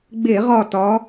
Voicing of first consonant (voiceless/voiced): voiced